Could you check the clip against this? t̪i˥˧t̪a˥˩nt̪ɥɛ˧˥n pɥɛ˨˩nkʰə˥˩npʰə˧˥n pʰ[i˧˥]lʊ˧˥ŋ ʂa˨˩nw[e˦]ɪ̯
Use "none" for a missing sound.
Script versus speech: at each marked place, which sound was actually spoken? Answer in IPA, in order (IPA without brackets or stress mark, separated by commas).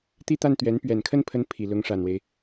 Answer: i˨˩, e˦